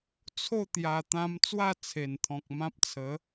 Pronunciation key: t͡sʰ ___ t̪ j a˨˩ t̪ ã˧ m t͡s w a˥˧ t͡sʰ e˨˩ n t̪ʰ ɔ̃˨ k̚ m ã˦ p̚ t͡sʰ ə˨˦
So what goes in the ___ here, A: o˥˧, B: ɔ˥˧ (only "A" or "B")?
A